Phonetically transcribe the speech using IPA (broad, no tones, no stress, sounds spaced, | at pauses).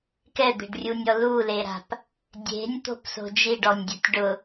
k ɛ d̪ e̤ ɖ rʲ u nʲ ɔ l u l e ɾ a̤ p | dʲ e̤ nʲ t̪ o̤ p s o̤ d͡ʒ i ɖ ɔ nʲ dʲ o̤ tʲ ɖ ʊ